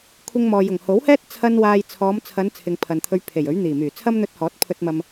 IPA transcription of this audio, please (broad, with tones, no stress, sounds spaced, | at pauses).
kʷʰ ɪ˧ ŋ m ɔː˨ j ʊ˨˩ ŋ h o˨˥ w h ɛː˥ t̚ t͡sʰ ɐ˥ n w aː˧ j t͡sʰ ɔː˨˧ m t͡sʰ ɐ˨˧ n t͡sʰ ɪ˨ ŋ pʰ ɐ˨ n t̪ʰ ɵ˧ ɥ pʰ e˨˩ j ɵ˨˥ ɥ n̪ iː˨˩ m yː˨˩ t͡sʰ ɐ˥ m n̪ ɵ˧ t̚ h ɔː˨˥ t̚ pʰ ɵ˧ t̚ m ɐ˧ m